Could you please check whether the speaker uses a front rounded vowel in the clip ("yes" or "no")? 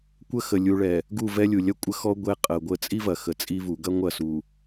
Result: no